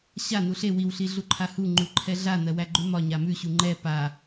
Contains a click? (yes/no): yes